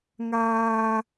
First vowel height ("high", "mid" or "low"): low